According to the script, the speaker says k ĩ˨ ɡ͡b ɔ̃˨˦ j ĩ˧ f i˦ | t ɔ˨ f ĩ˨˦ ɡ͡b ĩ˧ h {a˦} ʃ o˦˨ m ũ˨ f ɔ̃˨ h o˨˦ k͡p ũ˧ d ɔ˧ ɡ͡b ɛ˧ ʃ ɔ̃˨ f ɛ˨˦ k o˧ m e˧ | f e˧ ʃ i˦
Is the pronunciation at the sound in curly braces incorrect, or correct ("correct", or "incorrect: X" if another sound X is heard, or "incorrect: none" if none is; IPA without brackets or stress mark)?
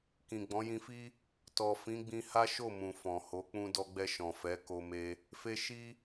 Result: correct